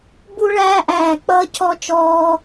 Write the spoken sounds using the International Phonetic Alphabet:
b u˥ ɭ æː˥ ʔ æː˦˨ k͡p ʌː˥ cʰ ɔ˥ t͡ʃ ɔː˥

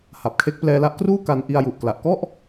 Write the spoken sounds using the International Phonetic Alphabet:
h a˨˩ p̚ kʰ e˦˥ k̚ p l ɛː˧ l a˦˥ ʔ k r uː˥˩ k a˧ n ʔ i˧ a̯ j u˨˩ ʔ k l a˨˩ ʔ k ɔ˥˩ ʔ

